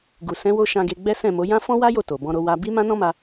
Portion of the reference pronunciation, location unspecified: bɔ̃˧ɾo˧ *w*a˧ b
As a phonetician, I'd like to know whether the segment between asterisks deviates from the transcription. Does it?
no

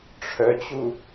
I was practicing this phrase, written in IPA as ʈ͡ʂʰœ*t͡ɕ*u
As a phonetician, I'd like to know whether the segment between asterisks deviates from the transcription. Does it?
no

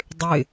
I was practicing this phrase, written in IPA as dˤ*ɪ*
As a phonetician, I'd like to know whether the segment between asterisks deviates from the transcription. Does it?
no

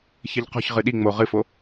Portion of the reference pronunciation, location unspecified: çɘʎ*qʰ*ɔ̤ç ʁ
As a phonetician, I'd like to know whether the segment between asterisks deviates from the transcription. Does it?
yes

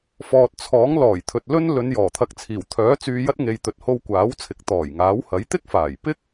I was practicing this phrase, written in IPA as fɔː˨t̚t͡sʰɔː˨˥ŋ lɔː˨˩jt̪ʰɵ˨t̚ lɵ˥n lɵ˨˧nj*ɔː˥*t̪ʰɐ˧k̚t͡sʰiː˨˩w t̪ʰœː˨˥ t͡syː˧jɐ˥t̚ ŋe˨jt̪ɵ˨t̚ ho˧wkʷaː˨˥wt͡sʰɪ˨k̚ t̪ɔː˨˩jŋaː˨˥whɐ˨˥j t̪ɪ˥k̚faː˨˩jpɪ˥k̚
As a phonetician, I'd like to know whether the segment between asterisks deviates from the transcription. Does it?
yes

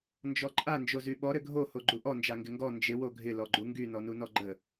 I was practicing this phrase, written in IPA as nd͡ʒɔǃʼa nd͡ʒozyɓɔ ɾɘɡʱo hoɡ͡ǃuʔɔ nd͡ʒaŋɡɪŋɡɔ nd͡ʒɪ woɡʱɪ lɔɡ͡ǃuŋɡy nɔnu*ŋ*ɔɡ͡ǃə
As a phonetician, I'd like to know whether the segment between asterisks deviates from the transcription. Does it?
yes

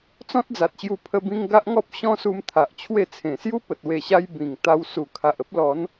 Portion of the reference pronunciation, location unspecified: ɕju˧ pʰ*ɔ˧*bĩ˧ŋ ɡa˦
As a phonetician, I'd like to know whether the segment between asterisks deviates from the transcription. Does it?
yes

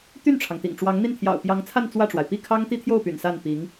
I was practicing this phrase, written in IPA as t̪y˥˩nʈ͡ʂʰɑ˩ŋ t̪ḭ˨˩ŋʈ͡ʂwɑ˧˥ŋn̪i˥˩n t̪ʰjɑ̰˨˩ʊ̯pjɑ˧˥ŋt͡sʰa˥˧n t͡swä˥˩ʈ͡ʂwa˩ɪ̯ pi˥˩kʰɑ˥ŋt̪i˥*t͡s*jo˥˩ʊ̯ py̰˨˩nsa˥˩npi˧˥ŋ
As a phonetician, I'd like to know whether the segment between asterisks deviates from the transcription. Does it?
yes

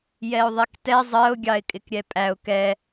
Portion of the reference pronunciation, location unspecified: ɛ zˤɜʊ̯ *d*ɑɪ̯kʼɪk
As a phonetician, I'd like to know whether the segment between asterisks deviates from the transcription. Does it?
yes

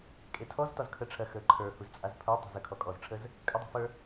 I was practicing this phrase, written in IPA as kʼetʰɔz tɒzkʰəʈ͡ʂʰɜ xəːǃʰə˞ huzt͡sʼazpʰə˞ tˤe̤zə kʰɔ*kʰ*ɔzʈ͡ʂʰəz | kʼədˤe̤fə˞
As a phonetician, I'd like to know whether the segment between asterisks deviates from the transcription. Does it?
yes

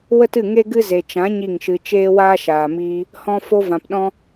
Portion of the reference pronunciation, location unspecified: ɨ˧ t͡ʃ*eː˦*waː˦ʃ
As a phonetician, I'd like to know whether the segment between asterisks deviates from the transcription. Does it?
no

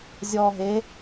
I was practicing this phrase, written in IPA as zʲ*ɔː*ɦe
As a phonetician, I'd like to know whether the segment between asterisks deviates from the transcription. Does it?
no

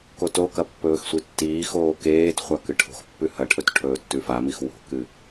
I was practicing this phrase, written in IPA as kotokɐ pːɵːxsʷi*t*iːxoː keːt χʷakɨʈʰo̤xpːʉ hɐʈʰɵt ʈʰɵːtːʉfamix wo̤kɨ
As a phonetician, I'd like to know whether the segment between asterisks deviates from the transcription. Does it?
yes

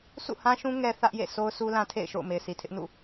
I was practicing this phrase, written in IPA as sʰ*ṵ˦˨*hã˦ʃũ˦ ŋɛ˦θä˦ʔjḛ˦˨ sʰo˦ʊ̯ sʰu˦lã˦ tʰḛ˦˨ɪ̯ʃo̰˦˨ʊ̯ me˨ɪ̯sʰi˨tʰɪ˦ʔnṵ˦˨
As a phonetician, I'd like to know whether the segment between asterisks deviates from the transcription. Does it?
no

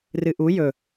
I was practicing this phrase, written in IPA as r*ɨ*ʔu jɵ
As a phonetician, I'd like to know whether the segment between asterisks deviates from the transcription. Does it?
no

